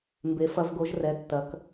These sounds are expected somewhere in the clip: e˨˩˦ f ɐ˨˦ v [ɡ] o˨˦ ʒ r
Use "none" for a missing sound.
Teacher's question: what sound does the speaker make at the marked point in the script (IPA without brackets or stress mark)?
ɡ